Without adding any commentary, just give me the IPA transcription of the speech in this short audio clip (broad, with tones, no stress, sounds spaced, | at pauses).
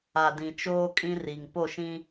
a˨ d ĩ˨ t͡ʃ oː˦ kʼ ĩ˦ r i˨ ŋ p o˦˨ ʃ ĩ˦